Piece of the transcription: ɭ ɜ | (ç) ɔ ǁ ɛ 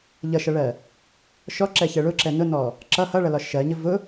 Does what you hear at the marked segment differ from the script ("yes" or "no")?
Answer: yes